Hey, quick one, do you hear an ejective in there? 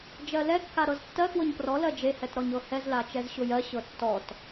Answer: no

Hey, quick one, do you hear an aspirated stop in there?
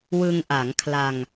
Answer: yes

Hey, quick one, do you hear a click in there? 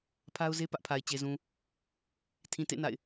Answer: no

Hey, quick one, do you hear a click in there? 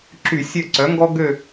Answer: yes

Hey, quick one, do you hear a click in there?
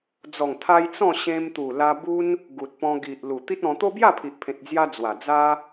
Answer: no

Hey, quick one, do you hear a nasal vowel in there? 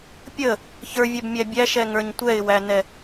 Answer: no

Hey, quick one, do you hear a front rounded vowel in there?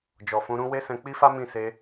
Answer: no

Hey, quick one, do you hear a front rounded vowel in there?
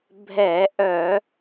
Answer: yes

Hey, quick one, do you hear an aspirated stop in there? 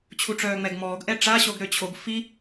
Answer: yes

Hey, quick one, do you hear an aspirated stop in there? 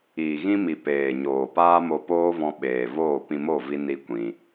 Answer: no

